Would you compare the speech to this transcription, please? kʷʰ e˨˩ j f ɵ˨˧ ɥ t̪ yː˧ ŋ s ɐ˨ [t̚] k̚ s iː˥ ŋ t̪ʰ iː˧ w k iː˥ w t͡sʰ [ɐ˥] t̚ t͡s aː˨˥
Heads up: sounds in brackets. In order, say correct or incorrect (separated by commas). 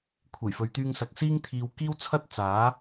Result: incorrect, correct